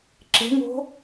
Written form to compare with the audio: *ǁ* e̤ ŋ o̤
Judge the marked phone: correct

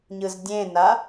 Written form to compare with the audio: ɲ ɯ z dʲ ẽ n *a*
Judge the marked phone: correct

